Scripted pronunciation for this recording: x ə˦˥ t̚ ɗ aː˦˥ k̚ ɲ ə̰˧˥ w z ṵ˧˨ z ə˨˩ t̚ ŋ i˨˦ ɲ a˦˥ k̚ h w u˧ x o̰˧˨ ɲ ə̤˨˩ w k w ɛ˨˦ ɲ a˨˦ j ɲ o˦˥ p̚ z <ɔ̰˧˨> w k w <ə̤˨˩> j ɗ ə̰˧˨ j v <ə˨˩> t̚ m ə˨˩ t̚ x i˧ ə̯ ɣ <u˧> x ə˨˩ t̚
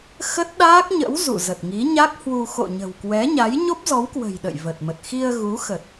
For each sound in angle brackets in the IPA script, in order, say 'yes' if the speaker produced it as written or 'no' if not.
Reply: no, yes, yes, no

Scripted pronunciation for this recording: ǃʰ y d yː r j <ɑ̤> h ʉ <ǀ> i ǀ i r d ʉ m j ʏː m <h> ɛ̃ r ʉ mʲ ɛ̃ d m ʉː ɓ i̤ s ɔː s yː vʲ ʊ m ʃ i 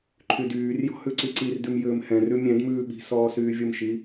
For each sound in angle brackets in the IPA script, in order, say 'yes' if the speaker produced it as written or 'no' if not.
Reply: no, yes, yes

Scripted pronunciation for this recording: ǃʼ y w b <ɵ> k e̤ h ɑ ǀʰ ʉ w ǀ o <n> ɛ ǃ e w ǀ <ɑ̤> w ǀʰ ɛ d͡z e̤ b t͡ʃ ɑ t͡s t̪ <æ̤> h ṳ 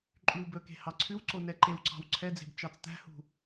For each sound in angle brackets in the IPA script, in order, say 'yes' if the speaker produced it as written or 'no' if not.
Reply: yes, yes, yes, yes

